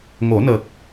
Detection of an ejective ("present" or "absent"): absent